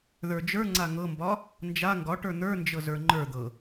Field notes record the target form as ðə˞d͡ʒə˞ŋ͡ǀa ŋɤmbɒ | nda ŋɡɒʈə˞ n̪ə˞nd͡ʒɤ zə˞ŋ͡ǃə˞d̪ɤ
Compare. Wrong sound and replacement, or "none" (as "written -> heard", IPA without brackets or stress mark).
d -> d͡ʒ